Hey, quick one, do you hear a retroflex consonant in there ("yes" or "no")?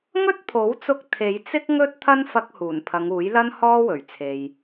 no